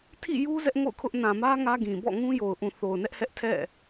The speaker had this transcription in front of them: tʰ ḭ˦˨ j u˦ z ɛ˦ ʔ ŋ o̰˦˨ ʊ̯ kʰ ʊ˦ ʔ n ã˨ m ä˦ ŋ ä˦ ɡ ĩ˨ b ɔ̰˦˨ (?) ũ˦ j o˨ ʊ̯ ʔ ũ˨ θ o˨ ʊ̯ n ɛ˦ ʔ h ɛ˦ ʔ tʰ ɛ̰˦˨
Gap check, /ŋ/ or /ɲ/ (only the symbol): ŋ